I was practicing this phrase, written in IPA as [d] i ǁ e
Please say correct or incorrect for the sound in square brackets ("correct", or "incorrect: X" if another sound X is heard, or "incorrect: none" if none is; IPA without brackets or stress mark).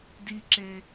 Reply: correct